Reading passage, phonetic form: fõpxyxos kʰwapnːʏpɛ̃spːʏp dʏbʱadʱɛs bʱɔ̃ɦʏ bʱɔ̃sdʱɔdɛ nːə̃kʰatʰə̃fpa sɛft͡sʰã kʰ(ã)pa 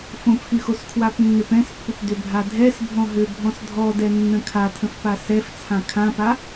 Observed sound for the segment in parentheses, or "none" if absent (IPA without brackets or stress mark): ã